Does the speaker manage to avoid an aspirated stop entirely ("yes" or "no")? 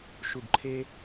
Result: no